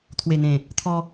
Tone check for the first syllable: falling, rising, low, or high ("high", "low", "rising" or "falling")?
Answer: low